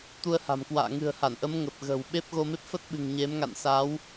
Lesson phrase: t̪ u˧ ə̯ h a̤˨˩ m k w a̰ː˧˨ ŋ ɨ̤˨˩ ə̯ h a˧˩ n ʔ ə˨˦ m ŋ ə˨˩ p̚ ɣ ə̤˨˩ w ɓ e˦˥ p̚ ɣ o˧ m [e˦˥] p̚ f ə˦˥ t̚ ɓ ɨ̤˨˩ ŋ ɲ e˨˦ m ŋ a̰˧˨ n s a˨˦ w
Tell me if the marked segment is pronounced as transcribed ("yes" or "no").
yes